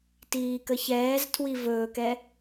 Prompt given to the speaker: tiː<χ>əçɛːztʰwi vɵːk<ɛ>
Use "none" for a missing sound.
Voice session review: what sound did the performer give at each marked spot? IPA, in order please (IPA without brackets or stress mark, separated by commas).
k, ɛ